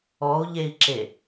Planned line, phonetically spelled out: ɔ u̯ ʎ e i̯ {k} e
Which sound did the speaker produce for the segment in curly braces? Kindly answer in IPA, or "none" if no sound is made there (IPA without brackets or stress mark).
ǁ